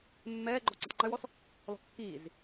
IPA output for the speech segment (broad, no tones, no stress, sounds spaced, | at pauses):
mː ɛː ɡ͡ǃ ɔ ǀ i tˤ ŋ͡ǃ y w ɔ s | l ɔ̤ kː iː z